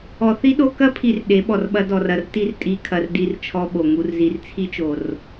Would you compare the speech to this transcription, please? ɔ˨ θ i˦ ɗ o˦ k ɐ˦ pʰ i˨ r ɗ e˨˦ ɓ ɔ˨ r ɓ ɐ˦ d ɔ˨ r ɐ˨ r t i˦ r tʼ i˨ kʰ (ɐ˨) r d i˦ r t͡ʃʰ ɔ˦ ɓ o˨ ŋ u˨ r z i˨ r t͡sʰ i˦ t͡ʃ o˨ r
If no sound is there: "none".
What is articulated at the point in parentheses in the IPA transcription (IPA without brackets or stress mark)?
ɐ˨